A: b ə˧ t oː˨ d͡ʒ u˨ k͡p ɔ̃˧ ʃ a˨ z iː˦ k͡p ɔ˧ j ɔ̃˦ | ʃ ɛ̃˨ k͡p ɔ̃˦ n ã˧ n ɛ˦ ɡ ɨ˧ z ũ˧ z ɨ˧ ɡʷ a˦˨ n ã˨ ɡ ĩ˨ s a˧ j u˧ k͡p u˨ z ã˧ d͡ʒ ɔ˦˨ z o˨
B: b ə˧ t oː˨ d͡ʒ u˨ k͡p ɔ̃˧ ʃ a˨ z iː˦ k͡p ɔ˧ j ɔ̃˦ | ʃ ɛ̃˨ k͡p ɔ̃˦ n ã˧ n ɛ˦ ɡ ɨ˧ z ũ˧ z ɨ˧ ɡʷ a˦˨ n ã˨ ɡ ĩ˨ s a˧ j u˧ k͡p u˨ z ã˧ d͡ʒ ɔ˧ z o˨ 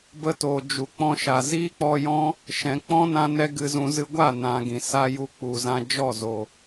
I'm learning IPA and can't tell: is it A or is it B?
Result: A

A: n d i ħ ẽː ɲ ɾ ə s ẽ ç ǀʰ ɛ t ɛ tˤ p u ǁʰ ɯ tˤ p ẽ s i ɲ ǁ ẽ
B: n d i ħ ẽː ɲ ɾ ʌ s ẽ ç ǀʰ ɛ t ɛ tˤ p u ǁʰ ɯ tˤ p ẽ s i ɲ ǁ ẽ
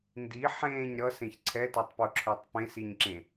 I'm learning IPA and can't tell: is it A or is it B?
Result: B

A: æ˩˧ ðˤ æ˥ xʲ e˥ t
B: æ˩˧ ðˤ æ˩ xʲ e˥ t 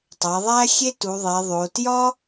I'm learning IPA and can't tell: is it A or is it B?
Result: A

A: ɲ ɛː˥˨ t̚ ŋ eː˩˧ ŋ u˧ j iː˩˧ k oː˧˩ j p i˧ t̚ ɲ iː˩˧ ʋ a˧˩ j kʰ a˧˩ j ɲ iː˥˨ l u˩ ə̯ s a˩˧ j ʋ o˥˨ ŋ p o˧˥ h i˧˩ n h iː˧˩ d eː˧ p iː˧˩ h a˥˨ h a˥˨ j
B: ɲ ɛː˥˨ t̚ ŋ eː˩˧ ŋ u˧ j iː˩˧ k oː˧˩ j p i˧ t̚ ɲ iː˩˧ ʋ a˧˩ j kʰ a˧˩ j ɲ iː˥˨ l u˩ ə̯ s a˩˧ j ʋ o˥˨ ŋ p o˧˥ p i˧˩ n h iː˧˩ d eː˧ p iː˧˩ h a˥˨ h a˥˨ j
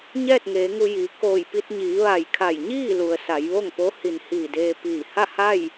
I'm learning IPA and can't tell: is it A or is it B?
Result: A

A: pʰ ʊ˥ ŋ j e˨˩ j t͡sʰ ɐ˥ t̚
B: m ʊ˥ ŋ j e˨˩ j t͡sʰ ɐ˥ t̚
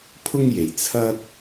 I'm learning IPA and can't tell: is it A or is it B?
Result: A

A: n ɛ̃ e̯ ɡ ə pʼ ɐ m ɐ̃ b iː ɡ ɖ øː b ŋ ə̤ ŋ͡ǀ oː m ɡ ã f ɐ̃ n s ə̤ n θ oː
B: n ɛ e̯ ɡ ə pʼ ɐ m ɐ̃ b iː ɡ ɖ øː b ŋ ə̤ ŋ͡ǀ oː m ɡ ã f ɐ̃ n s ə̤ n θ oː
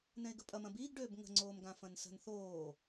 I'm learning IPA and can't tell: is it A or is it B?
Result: A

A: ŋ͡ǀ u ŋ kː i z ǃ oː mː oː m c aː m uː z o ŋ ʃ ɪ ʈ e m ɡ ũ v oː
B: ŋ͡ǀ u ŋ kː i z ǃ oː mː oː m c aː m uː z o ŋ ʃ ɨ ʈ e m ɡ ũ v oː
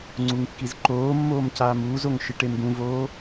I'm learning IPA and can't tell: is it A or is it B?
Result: A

